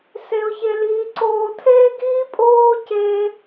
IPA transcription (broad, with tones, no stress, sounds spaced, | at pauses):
s e˦ ʊ̯ ç e˦ l iː˦ ǀ oː˧ tʰ eː˦ ɡ iː˦ pʼ oː˦ c e˦